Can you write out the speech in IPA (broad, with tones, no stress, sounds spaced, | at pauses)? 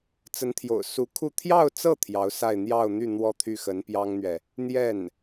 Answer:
t͡s ə˧˥ n t̪ʰ j o̰˨˩ ʊ̯ s u˧˥ kʰ u˥˧ t̪ʰ j ɑ˥˧ ʊ̯ t͡s ɤ˥˩ t̪ʰ j ɑ˧˥ ʊ̯ s a˥˧ ɪ̯ n̪ j ɑ˥˧ ʊ̯ n̪ y˥˧ n̪ w ɔ˥˧ t̪ʰ y˥˩ x ə˧˥ n p j ɑ˥ ŋ n̪ ɥ ɛ˨ | n̪ j ɛ˥˩ n